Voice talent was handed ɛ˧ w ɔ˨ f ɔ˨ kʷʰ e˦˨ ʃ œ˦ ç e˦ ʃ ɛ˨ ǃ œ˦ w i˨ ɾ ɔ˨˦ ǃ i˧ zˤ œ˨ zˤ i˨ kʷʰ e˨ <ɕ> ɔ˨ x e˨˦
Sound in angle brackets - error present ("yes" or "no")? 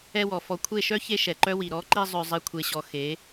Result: no